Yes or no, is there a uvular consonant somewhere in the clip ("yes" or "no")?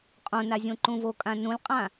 yes